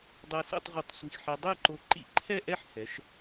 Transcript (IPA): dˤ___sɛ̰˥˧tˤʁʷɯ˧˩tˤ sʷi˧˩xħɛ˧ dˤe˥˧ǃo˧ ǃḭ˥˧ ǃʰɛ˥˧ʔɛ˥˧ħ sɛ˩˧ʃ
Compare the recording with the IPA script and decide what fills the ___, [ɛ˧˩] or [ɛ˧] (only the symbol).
ɛ˧